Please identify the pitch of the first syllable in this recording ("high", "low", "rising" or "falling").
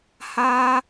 high